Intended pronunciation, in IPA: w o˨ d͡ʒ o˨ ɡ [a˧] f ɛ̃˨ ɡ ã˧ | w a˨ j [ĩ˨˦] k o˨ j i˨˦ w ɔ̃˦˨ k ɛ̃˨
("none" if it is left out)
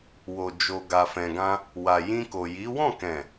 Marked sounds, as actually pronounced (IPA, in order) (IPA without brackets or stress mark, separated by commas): a˨, ĩ˧